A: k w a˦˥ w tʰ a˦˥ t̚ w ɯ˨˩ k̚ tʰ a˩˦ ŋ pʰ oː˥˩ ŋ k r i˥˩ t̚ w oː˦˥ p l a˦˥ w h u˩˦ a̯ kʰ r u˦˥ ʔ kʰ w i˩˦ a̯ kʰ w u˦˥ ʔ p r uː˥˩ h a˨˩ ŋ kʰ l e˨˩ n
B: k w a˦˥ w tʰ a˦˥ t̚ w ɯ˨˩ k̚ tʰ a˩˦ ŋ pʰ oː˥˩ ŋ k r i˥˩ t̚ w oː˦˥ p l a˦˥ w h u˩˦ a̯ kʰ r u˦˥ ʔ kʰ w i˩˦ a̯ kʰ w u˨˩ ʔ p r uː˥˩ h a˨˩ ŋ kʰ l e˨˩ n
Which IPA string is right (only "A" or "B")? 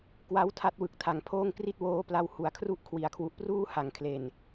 B